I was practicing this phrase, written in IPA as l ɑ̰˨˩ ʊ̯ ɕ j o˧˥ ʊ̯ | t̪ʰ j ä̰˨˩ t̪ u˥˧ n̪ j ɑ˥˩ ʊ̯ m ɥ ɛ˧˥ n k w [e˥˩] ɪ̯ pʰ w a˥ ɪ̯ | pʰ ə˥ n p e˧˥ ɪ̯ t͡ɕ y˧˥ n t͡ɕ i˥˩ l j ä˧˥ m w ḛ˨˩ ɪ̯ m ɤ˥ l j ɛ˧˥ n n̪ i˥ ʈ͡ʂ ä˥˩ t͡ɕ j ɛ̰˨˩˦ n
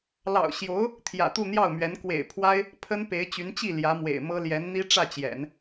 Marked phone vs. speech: incorrect: ḛ˨˩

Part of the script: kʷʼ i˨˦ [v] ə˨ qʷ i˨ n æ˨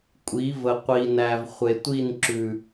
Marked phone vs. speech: correct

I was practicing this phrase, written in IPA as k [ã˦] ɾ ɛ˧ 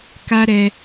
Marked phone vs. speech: incorrect: a˦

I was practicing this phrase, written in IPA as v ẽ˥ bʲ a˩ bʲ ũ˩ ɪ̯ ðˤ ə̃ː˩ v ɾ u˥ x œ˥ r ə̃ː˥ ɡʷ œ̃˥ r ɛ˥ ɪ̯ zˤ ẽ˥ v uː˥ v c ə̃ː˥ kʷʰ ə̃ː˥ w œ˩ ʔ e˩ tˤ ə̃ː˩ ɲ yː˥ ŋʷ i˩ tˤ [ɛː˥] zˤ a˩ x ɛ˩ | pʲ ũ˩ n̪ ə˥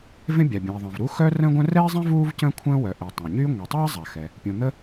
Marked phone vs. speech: correct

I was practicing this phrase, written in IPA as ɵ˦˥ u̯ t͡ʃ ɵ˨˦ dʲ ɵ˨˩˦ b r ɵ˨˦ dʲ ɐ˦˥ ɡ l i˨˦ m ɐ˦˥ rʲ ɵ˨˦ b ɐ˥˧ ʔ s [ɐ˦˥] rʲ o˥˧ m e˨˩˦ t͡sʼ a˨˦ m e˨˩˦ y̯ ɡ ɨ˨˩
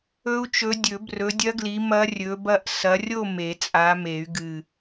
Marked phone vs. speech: incorrect: ɐ˨˦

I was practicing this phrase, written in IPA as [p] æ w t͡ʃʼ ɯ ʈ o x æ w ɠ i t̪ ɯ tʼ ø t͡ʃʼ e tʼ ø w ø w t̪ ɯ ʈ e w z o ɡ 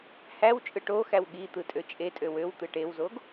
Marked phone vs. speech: incorrect: h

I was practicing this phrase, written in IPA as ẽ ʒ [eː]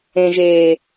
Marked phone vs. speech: correct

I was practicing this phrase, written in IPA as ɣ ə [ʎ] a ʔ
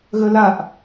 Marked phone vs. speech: incorrect: l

